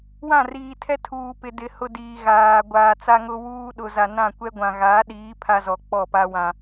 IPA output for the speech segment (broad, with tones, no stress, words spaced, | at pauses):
wã˦˨riː˨tʰɛ˦ tʰuː˨pɪ˨dɪ˨ hʊ˦diː˨ɣaː˨ ɡʷaː˨t͡sa˦ŋʊ˦ wuː˦ ɗʊ˨za˨nã˦˨ kʷɛ˦ɡʷã˨ɣa˨˦ɗiː˨˦ pʰa˦zɔ˨ k͡pɔ˦˨pa˦ wã˦